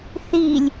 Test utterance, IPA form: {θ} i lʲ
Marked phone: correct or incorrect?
correct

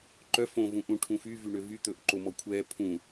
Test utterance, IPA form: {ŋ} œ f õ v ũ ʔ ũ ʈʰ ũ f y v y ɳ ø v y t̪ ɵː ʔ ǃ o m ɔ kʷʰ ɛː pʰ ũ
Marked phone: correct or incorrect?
incorrect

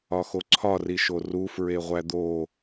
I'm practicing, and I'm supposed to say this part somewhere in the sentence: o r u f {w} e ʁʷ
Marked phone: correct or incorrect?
incorrect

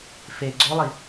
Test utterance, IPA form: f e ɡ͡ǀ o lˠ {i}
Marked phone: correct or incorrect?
correct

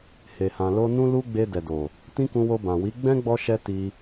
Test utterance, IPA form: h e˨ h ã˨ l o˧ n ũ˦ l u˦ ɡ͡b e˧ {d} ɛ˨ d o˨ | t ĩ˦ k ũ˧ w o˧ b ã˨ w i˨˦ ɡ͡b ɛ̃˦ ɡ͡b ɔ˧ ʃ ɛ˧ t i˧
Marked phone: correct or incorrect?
correct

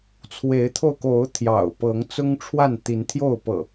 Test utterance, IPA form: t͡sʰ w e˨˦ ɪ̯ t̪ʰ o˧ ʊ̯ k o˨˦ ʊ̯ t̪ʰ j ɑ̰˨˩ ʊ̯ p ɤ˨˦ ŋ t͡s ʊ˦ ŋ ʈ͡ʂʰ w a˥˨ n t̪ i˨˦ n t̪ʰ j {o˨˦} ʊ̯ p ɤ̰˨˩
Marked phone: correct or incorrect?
incorrect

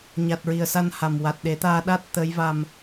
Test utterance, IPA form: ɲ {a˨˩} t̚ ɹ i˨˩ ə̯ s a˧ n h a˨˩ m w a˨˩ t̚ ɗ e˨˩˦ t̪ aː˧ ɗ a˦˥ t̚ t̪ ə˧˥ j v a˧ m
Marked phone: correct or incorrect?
correct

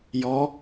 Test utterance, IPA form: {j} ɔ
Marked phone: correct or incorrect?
correct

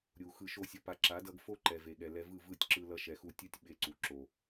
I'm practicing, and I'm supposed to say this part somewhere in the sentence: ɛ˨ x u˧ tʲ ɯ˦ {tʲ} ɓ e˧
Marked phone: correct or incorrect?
correct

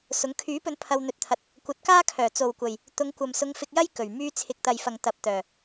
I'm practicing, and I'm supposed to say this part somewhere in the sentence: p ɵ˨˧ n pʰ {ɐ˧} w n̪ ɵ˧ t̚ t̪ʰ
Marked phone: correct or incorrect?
correct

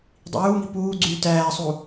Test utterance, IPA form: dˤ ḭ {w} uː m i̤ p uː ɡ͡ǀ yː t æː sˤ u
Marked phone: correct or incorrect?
correct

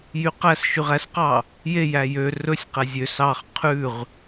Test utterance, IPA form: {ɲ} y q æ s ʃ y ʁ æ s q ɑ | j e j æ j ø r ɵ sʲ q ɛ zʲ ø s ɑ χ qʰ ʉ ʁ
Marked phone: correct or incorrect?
incorrect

